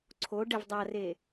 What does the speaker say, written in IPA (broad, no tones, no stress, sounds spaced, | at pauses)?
ǀʰ o ɖ ɛ v dˤ a r e